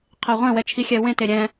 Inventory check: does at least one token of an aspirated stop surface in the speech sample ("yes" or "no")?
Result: yes